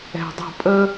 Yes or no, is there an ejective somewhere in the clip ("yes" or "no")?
yes